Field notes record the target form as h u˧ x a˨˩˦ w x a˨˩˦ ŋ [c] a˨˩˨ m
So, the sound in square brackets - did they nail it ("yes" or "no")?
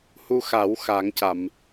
yes